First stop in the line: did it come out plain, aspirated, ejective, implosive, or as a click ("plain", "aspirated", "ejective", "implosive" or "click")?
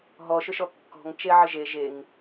plain